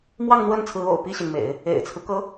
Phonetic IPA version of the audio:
m w ɑ˥˧ ŋ n̪ w ə˥˩ n t͡sʰ ɹ̩˧˥ o̰˨˩ ʊ̯ p i˥˩ ɕ i˩ n m ḛ˨˩˦ ɪ̯ | ḛ˨˩ ɪ̯ t͡sʰ ɹ̩˦ k ɤ˧˥

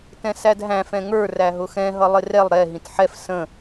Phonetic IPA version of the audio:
t ɛ̃ s æ d ɦ æ̃ f ɛ̃ ŋ ə˞ r æ ɦ ʊ x ɛ̃ ɦ ʌ lˠ ɪ r ɛ lˠ ɾ ɛ ɦ ĩ t ħ ɛ f s ə̃

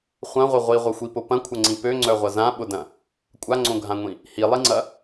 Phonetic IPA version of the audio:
χʷ ɐ̃ ʁʷ ɪ ʁʷ i ʁʷ ɐ xʷ i p ʊ p ɐ̃ kʷʰ ɐ ŋ͡ǀ ĩ p ø ŋ͡ǀ œ ʁʷ ɐ z ã ɓ ʊ d ɐ̃ | kʷʼ a ŋ͡ǀ õ ɡʱ ã ŋʷ ĩ | h i lˠ i ŋ͡ǀ ɐ

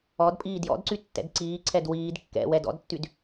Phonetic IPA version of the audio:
ɔ d pʼ iː d j ɔ̰ d ǀ y tː ɛ̰ d ǀ iː ǀʰ ɛ d w iː d kː ɛ̰ w ɛ d ɔ̰ d tː y d

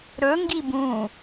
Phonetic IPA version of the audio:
ɾ ɵ ŋ ɡ i b ũ

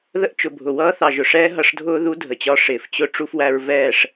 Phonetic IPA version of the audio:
ð ə˦ ʔ t͡ʃ ʊ˨ bʱ ʊ˨ w ʌː˦ θ ɑ˨ ʒ ʊ˨ ʂ ɛː˦ ɦ ʌ˧ ʂ dʱ ʊː˦ ð u˦ dʱ ə˨ t͡ɕ ɒ˧ ʂ ɪː˨ f t͡ɕ ʊ˦ ʈ͡ʂ u˧ f w æ˧ ɹ v ɛː˦˨ ʂ

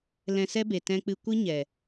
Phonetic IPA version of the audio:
l ɛ̃˧ s ɛ˦ b e˨ t ɛ̃˧ k͡p ɨ˧ kʷ ɨ˦ ɲ ɛ˨

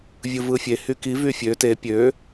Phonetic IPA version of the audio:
vʲ ɯ v ɯ fʲ e h y k i v y fʲ ø t e pʲ ø

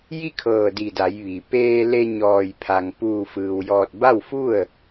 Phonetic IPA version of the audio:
j i˥˨ kʰ ɤː˧˩ d i˧˩ d a˩˧ j ʋ i˩ p eː˧ l e˧ ɲ ɔː˧˩ j pʰ a˩ ŋ p uː˧˩ f ɯː˩ w j ɔː˧˩ t̚ b a˥˨ w f u˥˨ ə̯

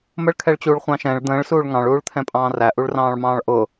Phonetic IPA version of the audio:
m ə ɭ kʰ ɛ ɭ t͡ɕ uː ɭ χʷ ɑ̃ ʃ ɛ̃ ɭ d̪ ə̃ː ɭ s uː ɭ ŋ ɑ̃ ɭ uː ɭ t̪ʰ ɛ̃ pʼ ɑ̃ː r æ ʔ u ɭ r ɑ̃ː ɭ m ɑ̃ː ɭ ʔ ʊ

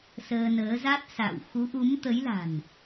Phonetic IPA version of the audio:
s əː˧ n əː˨˦ z a˦˥ t̚ s a̰˧˨ w x u˨˦ ʔ u˨˦ m t̪ ə˨˦ j l a̤˨˩ n

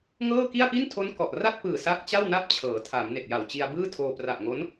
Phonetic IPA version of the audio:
ŋ ɤː˥˩ k i˥˩ a̯ p i˥˩ n tʰ o˦˥ n k ɔ˨˩ ʔ r a˥˩ t̚ p ɯː˨˩ s a˦˥ k̚ t͡ɕ a˥˩ w n a˥˩ p̚ t͡ɕʰ ɤː˩˦ tʰ a˩˦ m n e˨˩ k̚ j a˨˩ w t͡ɕ i˧ a̯ b ɯː˥˩ tʰ oː˧ p r a˨˩ ʔ ŋ o˦˥ n

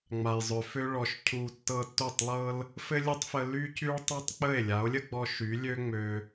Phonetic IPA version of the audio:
ŋ͡m a˨ j zˤ ø˨ f ø˧ ɭ ɔ˨ ʃ cʰ u˨ tː ɤ˧ tː o˦˨ tˤ lˠ ɤ˦ l | f ɘ˦ lʲ ɘ˦ tˤ f ə˧ l y˦ c y˦ ɭ tˤ u˦ tˤ k͡p ə˦˨ e̯ lʲ a˨˦ o̯ lʲ ə˦ ɡ͡b ɔ˧ ʃ y˨˦ lʲ ø˦ ŋ͡m ø˧

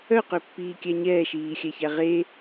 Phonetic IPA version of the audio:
œ q ø pː iː kʲ æ ɲ ɛː ʃ iː xʲ æ ç æ ʁ e

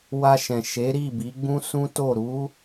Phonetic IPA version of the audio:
w a˧ ʃ ɛ̃˨ ʃ e˨˦ ɾ i˦˨ b i˨˦ ɡ͡b ũ˦ s ũ˦ t o˦˨ ɾ u˨˦

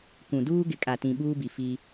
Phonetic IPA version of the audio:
k ũ˨ d uː˦ ɡ ɪ˨ kʼ a˨ t ĩ˨ ɓ uː˦ b i˨ f i˦

